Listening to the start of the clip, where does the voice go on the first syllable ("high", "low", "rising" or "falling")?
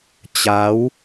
rising